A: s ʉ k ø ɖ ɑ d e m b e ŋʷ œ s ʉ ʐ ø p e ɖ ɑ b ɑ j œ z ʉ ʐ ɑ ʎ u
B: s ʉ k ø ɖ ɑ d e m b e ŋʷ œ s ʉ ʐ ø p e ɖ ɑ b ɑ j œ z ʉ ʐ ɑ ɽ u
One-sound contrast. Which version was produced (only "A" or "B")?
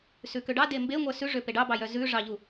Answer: A